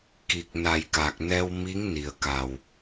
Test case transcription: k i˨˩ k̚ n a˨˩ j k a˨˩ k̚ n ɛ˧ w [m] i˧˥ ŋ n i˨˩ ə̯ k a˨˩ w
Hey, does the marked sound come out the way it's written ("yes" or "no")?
yes